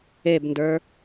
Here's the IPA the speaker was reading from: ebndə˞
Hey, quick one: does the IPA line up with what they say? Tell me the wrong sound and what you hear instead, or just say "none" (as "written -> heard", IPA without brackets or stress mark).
none